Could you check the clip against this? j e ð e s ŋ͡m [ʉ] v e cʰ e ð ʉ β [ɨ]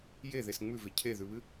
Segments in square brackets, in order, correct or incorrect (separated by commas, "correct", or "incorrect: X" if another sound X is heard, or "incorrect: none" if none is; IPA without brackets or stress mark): correct, correct